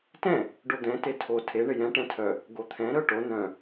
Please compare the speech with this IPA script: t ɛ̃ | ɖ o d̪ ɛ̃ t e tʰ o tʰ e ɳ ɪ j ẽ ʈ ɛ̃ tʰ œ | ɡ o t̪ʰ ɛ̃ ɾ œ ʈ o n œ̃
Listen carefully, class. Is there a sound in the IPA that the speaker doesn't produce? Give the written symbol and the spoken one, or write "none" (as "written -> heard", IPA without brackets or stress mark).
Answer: ẽ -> ɛ̃